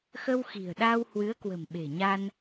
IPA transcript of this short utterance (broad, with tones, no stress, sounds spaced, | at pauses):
x ə˧ w x i̤˨˩ ə̯ ɗ aː˧ w h w ɨ˨˦ ə̯ k w ə̤˨˩ m ɓ e̤˨˩ ɲ a˧ n